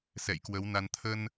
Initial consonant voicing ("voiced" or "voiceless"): voiceless